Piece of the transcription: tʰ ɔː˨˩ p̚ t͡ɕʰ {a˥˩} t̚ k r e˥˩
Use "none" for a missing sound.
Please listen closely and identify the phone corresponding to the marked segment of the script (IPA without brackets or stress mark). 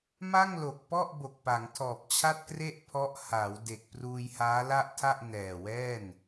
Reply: a˥˩